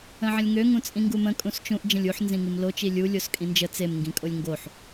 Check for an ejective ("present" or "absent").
present